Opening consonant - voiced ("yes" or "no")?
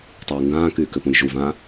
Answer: no